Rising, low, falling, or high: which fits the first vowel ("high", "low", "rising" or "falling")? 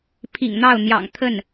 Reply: low